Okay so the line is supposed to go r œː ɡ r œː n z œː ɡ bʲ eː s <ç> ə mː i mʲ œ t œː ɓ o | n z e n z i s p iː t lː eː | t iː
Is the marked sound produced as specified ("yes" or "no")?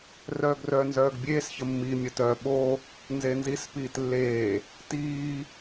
yes